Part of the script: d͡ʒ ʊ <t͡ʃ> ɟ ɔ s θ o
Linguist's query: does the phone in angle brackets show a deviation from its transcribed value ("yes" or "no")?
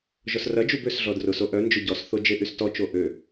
yes